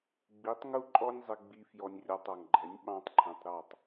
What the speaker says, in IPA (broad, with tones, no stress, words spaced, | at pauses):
ɡ͡bi˨˦tˤŋu˦ǃʼɔ˦nʲ zˤɪ˧ɡ͡bi˧ fjɔ˧nʲrʲɒ˧tˤɔ˨ŋɡ͡ǃɛ˨˦nʲ ɓɑ̃˦tˤǃʰɛ̃˧tˤ ɾɑ˦˨tˤ